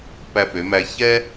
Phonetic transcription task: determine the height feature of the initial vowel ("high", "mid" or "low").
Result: low